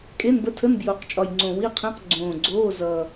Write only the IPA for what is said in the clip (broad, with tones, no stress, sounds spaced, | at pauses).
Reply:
kʼ e˧˥˧ n b ə˧˥ tʰ ə˧˥˧ n b j o˨˩ q t͡ʃʼ ɒ˨˩ j ŋ͡ǀ õ˨˩ w i˧˥˧ qʰ ẽ˧˥˧ q ɡ͡ǀ õː˨˩ ɡ͡ǀ oː˧˥˧ z ʌː˨˩